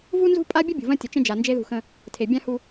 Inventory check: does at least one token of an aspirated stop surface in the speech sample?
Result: yes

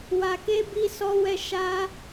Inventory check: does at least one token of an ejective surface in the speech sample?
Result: no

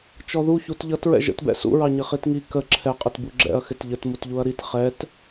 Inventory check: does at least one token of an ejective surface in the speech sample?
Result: yes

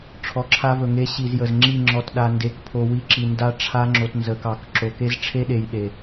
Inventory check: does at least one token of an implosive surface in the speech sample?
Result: yes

